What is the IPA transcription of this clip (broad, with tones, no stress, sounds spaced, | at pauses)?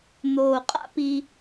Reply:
n̪ oː˨ qʼ a̰˦ p i˦